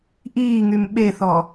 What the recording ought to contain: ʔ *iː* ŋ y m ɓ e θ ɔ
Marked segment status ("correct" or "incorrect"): correct